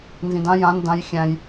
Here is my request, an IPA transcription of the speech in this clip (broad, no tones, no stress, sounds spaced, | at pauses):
n z ĩ d ã j ã n d ã j xʲ æ̃ j